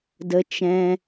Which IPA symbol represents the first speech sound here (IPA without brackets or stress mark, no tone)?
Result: d